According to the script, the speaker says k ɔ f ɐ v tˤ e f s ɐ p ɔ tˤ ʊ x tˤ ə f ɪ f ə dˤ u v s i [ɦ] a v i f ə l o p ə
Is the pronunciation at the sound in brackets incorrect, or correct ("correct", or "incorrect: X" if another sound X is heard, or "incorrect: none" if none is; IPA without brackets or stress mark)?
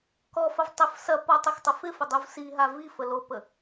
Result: correct